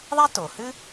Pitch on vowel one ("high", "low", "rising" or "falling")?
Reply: high